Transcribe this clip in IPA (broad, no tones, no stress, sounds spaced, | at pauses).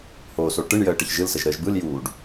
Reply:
h oː s o ʈ ɯ ɳ j əː ʈ ə ç ʒ ɯ l s ə ʒ ɾ əː ʒ b ɯ l j uː ɖ